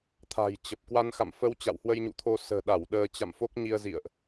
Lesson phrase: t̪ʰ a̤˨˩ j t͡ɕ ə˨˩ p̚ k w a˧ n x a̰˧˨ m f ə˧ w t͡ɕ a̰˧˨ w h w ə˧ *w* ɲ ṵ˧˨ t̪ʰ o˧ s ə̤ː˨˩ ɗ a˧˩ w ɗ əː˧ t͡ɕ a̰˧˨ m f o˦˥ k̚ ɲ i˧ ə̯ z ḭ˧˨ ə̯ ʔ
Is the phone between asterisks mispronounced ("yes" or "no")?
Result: yes